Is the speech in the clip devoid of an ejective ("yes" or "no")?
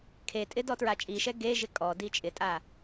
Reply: no